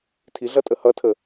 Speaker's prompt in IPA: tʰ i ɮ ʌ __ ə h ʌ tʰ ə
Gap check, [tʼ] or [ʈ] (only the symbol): tʼ